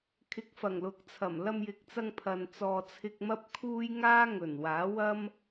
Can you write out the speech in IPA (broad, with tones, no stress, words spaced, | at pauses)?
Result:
kʰɪ˨˥k̚fɐ˨˩ŋlʊ˨˥k̚t͡sʰɐ˨˩m lɐ˧mjɪ˨k̚t͡sɐ˧ŋ pʰɐ˨nt͡sɔː˧t͡sʰɪ˥k̚ mɐ˥p̚kʰuː˥j ŋaː˥ŋɵ˨˩nwaː˨˥wɐ˥m